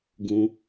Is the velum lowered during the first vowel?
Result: yes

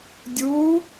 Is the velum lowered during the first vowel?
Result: no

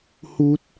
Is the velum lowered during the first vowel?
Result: no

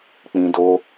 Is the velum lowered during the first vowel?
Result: yes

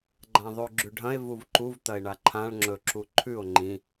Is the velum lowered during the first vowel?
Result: yes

